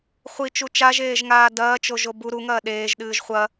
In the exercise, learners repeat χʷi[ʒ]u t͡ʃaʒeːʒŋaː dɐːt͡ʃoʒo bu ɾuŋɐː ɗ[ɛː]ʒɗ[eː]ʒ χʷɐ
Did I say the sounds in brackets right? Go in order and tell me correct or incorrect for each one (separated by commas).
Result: incorrect, incorrect, incorrect